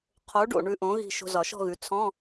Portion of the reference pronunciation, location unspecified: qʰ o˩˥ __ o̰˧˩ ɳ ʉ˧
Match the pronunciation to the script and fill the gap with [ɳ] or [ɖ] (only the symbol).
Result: ɖ